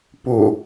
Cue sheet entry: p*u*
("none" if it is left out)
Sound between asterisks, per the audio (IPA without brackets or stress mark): u